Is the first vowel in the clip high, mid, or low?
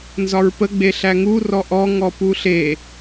low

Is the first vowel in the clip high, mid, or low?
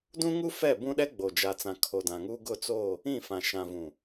high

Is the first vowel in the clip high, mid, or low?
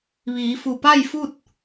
high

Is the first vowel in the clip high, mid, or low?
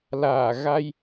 low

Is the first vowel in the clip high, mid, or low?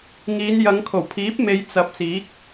high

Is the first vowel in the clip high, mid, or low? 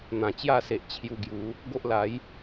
low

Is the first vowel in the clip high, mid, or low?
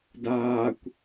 low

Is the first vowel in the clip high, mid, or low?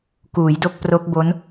high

